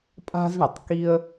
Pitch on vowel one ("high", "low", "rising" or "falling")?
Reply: high